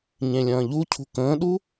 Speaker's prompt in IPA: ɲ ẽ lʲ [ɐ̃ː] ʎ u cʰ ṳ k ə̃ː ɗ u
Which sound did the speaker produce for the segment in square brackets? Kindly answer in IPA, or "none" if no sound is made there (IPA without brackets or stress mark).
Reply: ɐ̃ː